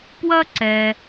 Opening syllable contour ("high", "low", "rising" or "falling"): high